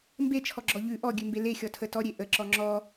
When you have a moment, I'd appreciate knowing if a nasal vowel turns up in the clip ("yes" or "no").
no